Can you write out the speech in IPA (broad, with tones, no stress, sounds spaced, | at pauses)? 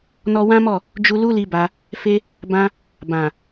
n ɔ˧ w ã˦ m ɔ˦˨ | d͡ʒ u˧ l u˦ l i˦ b a˧ | f e˦ | b ã˦ | b ã˨